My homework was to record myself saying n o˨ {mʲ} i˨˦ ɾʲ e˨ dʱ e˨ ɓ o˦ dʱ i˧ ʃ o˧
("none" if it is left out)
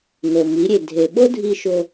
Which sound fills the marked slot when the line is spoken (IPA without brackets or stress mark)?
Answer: m